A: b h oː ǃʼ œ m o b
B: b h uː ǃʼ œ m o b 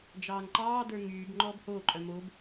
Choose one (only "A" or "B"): A